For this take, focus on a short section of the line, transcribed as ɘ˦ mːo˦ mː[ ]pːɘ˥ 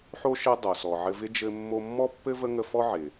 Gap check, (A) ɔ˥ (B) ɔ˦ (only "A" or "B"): A